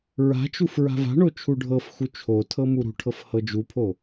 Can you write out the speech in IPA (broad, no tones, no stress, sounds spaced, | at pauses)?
ɹ a̤ t͡ʃ u f ɹ a̤ v a̤ ɳ o t͡ʃʰ u ɖʱ ɤ f x u t͡ʃʰ o tʰ ɤ m u ɾ ṳ ʈʰ ɤ f h ɤ d͡ʒ u pʰ o